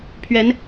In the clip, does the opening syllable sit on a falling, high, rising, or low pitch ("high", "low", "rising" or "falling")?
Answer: rising